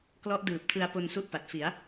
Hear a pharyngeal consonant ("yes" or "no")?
no